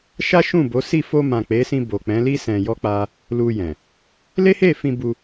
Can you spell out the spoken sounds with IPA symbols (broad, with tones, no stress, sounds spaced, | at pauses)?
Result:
ʃ a˦ ʃ ũ˦˨ b o˨˦ s i˦˨ f o˧ m ã˨ k͡p e˨˦ s ĩ˧ b o˨ k͡p ɛ̃˨˦ l i˦ s ɛ̃˧ j ɔ˦ k͡p a˦ | l u˧ j ɛ̃˨ | l e˦ h e˦˨ f ĩ˧ b u˧